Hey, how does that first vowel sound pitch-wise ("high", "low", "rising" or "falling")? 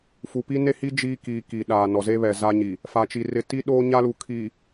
low